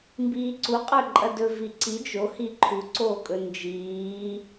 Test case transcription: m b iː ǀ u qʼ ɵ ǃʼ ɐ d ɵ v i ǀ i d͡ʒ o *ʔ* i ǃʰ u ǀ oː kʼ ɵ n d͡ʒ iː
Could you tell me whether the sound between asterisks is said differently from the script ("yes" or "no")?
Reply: yes